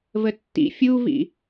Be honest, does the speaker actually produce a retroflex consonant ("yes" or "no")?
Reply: no